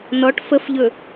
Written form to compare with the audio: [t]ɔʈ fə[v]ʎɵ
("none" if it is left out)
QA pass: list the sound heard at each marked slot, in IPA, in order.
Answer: n, f

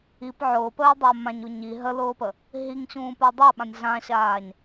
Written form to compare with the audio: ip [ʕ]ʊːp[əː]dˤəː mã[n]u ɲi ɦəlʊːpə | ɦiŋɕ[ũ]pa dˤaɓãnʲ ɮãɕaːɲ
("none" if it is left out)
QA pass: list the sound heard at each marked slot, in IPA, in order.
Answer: ʕ, əː, ɲ, ũː

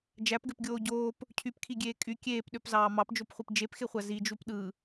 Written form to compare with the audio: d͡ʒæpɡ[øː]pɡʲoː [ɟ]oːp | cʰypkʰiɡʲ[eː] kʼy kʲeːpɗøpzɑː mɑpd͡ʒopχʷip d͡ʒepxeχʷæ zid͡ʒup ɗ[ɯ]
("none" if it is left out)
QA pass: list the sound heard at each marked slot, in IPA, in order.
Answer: ø, ɟ, eː, ɯ

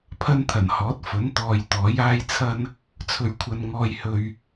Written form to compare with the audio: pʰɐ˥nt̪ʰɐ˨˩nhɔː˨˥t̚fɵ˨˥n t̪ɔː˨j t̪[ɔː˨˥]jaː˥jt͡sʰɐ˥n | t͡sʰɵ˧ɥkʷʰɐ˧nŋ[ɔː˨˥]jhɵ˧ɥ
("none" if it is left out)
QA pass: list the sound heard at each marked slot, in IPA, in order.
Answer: ɔː˨˥, ɔː˧

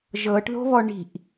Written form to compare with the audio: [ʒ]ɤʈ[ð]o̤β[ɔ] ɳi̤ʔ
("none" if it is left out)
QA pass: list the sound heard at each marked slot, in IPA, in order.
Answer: ʒ, ð, ɔ

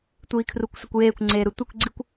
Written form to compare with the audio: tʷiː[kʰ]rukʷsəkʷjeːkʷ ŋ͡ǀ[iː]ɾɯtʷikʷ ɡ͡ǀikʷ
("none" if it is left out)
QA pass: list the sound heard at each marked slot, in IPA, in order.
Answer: kʰ, eː

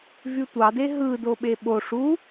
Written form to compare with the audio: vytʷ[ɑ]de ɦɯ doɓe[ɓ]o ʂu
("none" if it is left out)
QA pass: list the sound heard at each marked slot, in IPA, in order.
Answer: ɑ, ɓ

